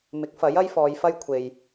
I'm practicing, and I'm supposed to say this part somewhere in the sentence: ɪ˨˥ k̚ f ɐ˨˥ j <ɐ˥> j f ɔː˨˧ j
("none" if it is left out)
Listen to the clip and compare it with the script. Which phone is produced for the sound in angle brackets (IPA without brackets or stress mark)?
ɐ˥